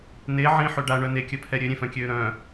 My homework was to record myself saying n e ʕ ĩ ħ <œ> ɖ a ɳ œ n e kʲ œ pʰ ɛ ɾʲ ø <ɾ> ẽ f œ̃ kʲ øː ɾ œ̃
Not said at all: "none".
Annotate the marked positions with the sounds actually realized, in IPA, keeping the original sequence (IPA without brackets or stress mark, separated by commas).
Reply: ø, ɾʲ